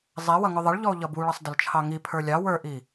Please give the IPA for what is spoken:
zˤ ɛ w ʌ ŋ ʊ ðˤ ə ɭ ʎ ɔ o̯ ʎ ʌ b u ɭ ʌ sˤ d ə l t͡ʃʰ ɑ ŋ i pʰ ə˞ lʲ ɑ w ə˞ ʔ i

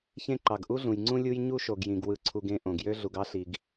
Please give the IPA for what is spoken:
ç ẽ˦ ǃ ɑ˨ ɡ ʔ u˦ ɮ ũ˨ j ŋ͡ǀ ũ˦ lʲ u˦ j ɲ u˦ ʃ o˨ ɡ j ĩ˨ ɡ w ɯ˨ ǀʰ u˨ ɡ ẽ˦ ʔ õ˨ ɡ j ø˦ ɮ u˨ ɡ ɑ˦ ɬ i˨ ɡ

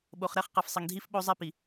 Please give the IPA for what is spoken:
ɓ o˨ χ ɾ ɛ˦ χ q ɛ˨ f sˤ ɘ˨ ŋ dʱ i˦ f ɓ o˦ zˤ ɛ˦ p i˨

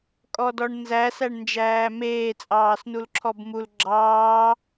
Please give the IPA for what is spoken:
kʼ ɔ d ɔ ɳ n z æ s æ ɳ n d͡ʒ æː m eː t͡sʼ ɑː s n u l ǁʰ ɔ b m u l ɡ͡ǁ ɑː

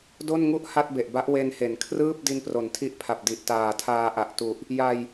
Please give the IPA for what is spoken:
d o˥˩ n ŋ u˥˩ ʔ h a˥˩ t̚ b e˨˩ ʔ b a˦˥ ʔ w e˧ n h e˩˦ n kʰ r ɯː˥˩ p̚ d i˧ n p r o˩˦ n tʰ i˦˥ ʔ pʰ a˨˩ p̚ d i˨˩ ʔ t aː˨˩ tʰ aː˧ ʔ a˨˩ ʔ t u˨˩ ʔ | j a˧ j

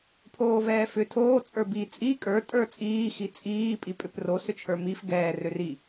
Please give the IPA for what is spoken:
pʰ oː v ɛː f ʏ tʰ oː t͡sʼ ə˞ b i t͡sʼ i kʼ ə˞ tʼ ə˞ t͡sʼ iː x i t͡sʼ iː pʼ i pʼ ʏ p r o s ʏ t͡ʃʰ ə˞ m i f ɡ ɛː r ø r i

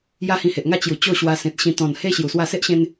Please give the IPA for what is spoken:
j a˦ h ĩ˧ h e˨ ʔ ŋ a˥˧ t͡ɕ j u˨˩ t͡ɕ o˥˧ ɕ w a˧ s ẽ˨ t̚ ɕ ĩ˧ t̪ ɔ̃˨˩ n h e˦ ɕ j u˨˩ s w a˥˧ s e˦ ʔ ɕ ẽ˧ n

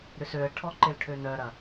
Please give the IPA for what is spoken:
ɾ ʏ s ø ə̯ ʈʰ ɔ ǃ ɪ l ʈʰ ø n œ ɾ ɐ

